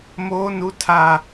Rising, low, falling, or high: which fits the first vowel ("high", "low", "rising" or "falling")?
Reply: high